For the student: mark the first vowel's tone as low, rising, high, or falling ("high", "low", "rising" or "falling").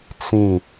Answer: falling